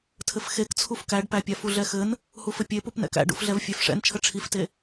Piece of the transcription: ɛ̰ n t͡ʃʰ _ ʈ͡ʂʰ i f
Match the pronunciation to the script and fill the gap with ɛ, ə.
ə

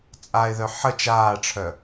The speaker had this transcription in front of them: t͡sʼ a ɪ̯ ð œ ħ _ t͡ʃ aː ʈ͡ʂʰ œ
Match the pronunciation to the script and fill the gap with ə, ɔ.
ə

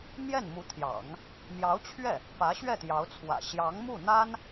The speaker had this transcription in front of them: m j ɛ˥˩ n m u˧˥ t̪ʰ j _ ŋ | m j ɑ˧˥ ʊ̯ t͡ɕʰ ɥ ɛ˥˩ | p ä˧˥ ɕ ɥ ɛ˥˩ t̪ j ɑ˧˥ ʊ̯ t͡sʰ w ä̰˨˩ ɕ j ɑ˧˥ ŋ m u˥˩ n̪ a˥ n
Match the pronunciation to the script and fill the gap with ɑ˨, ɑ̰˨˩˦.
ɑ̰˨˩˦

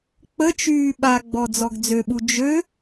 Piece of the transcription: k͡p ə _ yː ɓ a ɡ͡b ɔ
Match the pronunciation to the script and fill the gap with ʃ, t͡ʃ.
t͡ʃ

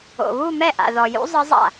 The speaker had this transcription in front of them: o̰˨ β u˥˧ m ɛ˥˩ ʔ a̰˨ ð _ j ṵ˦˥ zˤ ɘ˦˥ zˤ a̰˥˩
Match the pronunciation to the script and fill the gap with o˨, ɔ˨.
ɔ˨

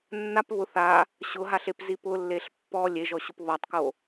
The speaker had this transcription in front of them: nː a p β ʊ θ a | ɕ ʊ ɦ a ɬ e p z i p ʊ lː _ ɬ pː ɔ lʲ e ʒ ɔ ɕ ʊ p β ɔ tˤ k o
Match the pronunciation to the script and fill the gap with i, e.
e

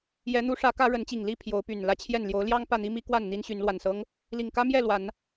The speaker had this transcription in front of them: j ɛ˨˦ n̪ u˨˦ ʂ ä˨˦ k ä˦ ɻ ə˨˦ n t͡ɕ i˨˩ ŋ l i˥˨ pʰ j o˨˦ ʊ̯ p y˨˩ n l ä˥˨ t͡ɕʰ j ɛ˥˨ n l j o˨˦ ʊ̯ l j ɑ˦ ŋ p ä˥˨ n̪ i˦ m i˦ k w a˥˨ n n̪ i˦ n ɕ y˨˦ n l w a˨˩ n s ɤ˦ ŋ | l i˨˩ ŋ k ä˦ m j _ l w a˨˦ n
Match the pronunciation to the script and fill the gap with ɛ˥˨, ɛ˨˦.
ɛ˥˨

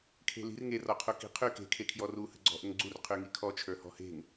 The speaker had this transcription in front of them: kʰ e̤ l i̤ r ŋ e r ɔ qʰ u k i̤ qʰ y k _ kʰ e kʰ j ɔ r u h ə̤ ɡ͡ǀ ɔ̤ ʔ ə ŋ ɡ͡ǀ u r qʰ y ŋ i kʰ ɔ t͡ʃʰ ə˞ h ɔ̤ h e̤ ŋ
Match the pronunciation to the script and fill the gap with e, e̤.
e̤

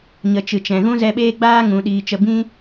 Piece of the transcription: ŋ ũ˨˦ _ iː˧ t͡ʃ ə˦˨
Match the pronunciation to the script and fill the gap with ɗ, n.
ɗ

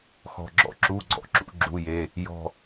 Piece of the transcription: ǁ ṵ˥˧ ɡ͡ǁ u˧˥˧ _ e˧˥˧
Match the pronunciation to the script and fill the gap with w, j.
j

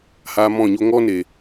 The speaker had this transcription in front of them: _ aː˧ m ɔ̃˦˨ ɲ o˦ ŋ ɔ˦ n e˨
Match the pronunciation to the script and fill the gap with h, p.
h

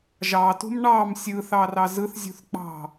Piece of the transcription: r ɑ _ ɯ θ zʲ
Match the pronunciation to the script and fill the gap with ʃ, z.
z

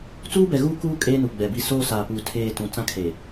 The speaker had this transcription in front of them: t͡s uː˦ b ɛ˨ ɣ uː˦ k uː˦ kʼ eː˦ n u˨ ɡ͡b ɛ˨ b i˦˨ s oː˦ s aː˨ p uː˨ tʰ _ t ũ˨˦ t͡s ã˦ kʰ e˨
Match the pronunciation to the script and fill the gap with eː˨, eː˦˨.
eː˦˨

